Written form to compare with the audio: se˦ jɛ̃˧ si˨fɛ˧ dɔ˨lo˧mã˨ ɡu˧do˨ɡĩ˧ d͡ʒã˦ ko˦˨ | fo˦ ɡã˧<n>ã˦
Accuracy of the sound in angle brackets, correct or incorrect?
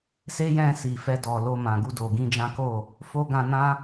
correct